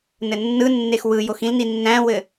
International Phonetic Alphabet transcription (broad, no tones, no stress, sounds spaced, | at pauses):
n ɘ nː ɯ nː e x w ɯ j o x ĩ l n i nː æ̃ w ɘ